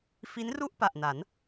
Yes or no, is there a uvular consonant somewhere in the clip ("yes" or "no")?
no